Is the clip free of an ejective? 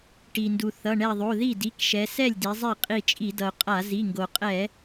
no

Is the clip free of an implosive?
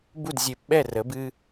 no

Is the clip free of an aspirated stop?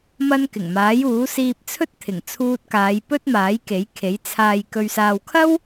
no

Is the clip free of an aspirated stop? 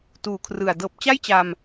no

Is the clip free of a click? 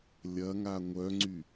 no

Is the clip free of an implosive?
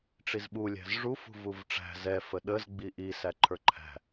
no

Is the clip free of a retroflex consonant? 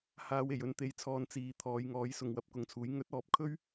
yes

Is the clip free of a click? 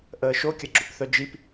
no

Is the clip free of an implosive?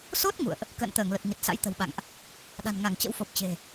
no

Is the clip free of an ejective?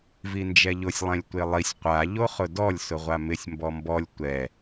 yes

